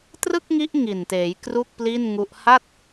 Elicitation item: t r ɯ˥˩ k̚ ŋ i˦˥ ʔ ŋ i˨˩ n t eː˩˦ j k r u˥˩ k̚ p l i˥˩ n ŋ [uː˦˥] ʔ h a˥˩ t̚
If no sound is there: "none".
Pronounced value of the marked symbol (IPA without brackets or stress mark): u˦˥